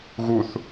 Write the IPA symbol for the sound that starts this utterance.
ɣ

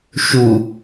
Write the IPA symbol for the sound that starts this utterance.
ʃ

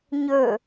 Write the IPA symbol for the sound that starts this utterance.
ɲ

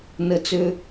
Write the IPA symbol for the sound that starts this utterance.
n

